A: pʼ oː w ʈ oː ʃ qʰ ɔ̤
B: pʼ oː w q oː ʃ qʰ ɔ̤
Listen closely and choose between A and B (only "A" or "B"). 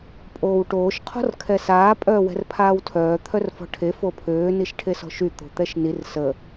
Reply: A